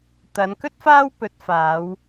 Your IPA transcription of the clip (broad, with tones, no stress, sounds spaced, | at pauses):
t̪ ɐ˨˧ n k ɵ˥ t̚ f aː˥ w p ɵ˨˥ t̚ f aː˨˧ w